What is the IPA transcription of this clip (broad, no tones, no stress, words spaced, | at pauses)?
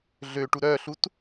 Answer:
ɮøʈu ɾœɬut